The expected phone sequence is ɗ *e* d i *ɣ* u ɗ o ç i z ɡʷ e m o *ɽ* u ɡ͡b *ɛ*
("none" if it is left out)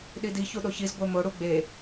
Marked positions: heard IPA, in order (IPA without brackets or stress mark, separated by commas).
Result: i, ç, ɽ, e